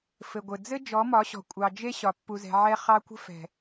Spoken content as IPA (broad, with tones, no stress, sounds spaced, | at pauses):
f ɘ˨ ɡʷ ɘ˨ d͡z ɘ˦ d͡ʒ ɔ˨˦ m ɒ˨˦ ɕ ɔ̤˨ kʷʼ ɑ˨ d͡ʒ e˦ ɕ ɒ˨ pː u˨ z ɛ̤˨ ʕ ɛ˦ χ ɑ˦ kʷ ə̤˦ f ɛ̤˨